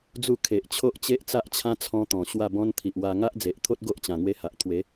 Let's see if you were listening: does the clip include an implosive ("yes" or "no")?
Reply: no